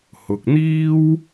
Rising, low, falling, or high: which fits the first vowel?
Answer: low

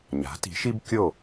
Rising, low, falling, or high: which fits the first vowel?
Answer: rising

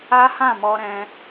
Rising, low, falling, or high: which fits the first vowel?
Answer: high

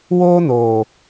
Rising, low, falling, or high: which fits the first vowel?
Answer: high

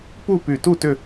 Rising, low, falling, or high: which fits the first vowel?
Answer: falling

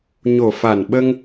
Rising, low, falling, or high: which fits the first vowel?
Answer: low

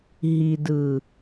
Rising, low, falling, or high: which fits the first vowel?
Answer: low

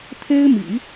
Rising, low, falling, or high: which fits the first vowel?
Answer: high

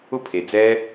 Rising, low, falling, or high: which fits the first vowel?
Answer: high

